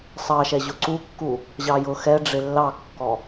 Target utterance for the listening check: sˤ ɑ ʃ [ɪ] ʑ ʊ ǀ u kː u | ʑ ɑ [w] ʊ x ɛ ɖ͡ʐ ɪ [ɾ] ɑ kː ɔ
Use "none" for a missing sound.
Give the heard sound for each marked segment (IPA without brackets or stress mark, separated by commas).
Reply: ɛ, j, lː